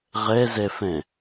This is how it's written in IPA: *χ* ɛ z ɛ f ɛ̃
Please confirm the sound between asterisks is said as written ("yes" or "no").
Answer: no